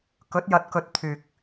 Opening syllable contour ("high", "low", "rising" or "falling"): rising